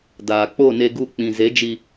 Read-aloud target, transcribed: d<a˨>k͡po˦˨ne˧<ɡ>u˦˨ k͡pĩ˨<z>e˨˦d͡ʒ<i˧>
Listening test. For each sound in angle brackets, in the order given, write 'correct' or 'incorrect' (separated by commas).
incorrect, correct, correct, correct